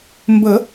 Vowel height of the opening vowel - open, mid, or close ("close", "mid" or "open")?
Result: mid